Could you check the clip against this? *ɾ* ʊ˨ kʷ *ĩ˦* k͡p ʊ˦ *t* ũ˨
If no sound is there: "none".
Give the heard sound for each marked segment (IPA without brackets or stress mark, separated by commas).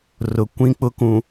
r, ĩ˦, k